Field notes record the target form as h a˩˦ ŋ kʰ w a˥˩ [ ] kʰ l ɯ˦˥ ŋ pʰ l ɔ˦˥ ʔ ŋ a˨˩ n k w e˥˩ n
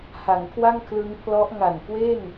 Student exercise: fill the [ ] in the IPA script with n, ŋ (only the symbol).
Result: ŋ